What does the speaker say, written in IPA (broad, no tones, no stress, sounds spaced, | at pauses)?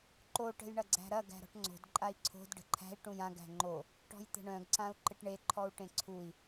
ǃ o ʈ ə̤ j ɳ ɐ ɡ͡ǀ æ̤ ɾ ɐ ɡ æ̤ ɾ ɔ̤ ʈ ŋ͡ǀ o̤ d ǃʼ a i̯ ǀʰ o̤ d ɖ ə̤ ǃʰ æ̤ i̯ ʈ ũ j ã ɡ æ̤ ŋ͡ǃ o | ʈ ɔ̤ j t̪ ə̤ ɳ œ̃ ɡ ǀ ã u̯ ǃ ɪ ʈ ɳ e ǃʰ ɔ u̯ ʈ ẽ ǀʰ u i̯